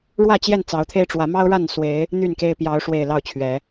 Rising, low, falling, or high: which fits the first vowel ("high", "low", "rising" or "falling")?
falling